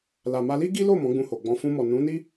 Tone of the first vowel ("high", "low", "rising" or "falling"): low